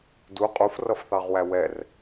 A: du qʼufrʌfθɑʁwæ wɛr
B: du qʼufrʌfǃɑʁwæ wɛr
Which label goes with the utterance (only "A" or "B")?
A